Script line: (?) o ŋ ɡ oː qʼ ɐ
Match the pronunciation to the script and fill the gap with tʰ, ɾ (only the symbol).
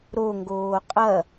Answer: ɾ